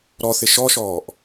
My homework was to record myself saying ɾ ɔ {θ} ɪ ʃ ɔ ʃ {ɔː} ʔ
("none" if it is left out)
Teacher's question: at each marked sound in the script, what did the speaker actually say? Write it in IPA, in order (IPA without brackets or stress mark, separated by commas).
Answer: θ, ɔː